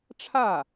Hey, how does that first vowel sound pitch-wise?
falling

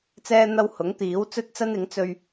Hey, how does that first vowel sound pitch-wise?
high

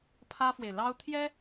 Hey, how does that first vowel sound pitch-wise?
high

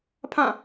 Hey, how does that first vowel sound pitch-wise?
falling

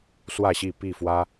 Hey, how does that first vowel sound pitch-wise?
falling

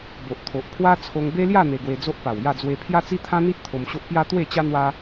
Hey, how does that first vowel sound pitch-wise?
low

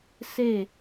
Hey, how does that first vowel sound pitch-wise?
falling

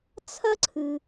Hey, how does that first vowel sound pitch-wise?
high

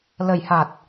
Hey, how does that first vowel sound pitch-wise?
low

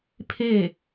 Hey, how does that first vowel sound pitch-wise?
falling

